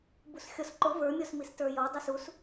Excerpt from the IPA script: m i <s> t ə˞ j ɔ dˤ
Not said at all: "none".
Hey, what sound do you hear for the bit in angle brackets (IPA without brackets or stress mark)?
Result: s